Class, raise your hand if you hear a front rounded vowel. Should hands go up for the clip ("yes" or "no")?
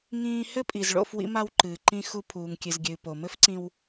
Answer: no